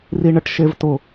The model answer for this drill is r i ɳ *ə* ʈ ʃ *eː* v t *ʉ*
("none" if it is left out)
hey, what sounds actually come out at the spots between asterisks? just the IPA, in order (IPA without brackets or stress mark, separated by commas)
ə, e, ʊ